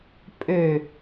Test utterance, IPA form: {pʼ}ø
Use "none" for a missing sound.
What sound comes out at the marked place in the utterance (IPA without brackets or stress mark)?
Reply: pʼ